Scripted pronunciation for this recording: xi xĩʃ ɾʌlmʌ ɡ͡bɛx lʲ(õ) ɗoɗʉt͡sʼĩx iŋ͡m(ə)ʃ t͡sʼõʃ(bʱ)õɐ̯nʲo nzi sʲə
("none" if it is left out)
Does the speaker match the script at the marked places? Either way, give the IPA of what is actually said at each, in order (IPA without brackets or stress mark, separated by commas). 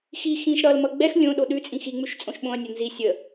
õ, ʉ, ɓ